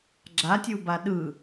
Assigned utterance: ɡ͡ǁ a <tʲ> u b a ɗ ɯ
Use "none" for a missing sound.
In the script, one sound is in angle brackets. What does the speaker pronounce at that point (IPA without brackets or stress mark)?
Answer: tʲ